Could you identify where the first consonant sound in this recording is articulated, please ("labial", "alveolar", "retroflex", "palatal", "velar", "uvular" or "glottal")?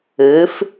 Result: labial